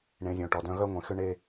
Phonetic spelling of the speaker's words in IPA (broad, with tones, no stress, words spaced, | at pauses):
ɳẽ˨˦zʲõ˨ʈɔ˨dœ̃˦ ɣœ˦ŋʷẽ˨xʏ˦ ɳe˦